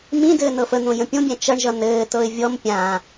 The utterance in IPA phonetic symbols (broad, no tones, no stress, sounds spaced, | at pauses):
m ĩ d ɘː n ɤ f ə n̪ õ j ə̃ pʲ õ bʲ æ̃ t͡ʃ ʌ ɳ ʒ ʌ n ɘː t ɤ ɪ̯ vʲ ɔ m pʲ ã